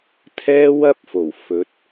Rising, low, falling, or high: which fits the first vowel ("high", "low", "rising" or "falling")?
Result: high